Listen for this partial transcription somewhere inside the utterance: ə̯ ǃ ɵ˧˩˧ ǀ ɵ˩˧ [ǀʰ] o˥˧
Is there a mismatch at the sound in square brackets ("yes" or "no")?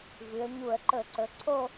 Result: no